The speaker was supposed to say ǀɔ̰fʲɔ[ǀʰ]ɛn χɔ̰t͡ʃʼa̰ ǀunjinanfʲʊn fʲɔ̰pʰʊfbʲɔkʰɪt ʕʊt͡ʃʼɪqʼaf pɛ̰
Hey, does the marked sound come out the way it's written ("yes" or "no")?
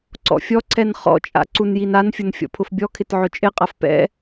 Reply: yes